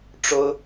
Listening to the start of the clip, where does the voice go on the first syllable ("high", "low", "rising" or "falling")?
high